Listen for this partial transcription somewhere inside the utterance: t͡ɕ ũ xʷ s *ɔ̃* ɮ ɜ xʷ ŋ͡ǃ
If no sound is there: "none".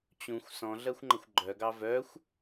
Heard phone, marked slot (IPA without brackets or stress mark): ɔ̃